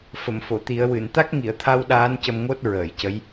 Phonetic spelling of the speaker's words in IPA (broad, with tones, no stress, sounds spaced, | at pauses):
f ə˨˩˨ m f o˨˩˨ t̪ i˨˩˦ ə̯ w ɨ˨˩˨ n t̪ a˦˥ k̚ ŋ i˨˩˨ ə̯ t̪ʰ a˧ w ɗ aː˧˥ n c ə˧ m ŋ o˦˥ t̚ ɹ əː˨˩˨ j c ə˧˥ j